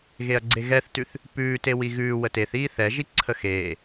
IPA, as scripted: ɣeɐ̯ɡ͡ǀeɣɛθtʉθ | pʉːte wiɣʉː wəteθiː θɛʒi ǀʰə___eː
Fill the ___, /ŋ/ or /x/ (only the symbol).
x